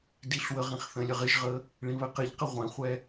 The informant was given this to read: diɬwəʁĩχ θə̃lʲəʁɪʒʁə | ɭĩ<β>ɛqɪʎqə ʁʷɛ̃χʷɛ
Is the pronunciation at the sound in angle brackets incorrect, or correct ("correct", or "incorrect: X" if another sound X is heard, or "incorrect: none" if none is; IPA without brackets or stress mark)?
correct